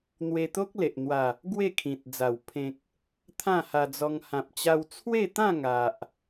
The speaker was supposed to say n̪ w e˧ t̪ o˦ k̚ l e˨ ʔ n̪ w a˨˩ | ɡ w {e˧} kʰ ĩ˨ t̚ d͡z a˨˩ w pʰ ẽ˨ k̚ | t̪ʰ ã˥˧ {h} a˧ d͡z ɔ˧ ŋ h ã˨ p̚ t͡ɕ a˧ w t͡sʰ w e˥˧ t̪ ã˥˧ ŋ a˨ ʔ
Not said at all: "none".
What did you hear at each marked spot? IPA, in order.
e˥˧, h

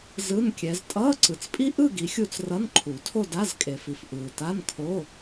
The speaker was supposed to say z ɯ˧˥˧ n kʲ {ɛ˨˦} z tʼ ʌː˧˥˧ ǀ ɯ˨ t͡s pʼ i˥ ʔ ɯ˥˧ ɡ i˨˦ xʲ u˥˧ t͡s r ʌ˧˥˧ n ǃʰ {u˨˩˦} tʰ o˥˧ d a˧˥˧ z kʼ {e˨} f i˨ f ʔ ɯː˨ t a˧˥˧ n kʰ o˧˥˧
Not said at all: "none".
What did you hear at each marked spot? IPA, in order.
ɛ˨˦, u˨˩˦, e˨

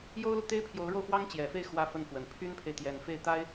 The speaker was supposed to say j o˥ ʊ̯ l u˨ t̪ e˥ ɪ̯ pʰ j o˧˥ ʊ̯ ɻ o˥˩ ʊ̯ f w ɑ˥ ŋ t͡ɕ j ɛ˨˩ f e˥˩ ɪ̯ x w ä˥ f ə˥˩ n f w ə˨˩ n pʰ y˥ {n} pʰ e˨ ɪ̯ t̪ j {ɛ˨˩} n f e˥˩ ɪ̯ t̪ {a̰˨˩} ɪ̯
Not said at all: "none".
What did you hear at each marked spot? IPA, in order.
n, ɛ˨˩, a˥

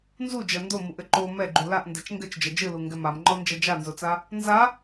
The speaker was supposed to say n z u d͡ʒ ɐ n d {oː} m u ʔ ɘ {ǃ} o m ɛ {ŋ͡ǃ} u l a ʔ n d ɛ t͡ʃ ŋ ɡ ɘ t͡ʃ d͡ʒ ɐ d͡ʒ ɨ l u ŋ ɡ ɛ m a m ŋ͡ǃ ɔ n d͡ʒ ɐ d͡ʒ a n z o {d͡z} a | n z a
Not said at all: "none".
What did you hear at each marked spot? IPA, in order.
o, ǃ, ɡ͡ǃ, t͡s

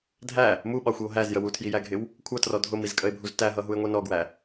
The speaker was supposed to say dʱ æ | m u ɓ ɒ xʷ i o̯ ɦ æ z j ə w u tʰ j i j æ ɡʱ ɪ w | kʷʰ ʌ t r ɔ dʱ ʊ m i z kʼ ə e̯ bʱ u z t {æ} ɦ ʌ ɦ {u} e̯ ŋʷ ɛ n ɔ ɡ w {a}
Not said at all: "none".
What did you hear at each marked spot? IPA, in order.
æ, u, æ

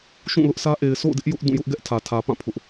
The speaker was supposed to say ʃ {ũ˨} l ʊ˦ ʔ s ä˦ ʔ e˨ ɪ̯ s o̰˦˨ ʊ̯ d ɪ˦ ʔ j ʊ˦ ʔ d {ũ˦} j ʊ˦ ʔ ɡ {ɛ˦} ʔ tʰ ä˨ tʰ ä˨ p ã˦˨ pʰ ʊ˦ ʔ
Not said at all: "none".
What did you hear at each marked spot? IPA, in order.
ũ˦˨, ũ˦˨, ɛ˦

